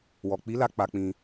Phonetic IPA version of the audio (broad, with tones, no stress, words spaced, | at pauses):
wɔ˨k͡pi˨˦la˧ k͡pa˧k͡pĩ˧